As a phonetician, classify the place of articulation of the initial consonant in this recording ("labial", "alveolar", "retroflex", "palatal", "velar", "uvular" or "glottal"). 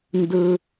alveolar